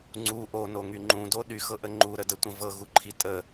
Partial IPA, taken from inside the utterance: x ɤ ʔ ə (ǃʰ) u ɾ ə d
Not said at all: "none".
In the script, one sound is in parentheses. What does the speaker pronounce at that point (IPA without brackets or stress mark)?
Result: ŋ͡ǃ